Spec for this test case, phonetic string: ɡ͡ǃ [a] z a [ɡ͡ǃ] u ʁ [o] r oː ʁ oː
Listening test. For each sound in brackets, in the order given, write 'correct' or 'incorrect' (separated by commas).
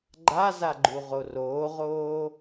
correct, correct, correct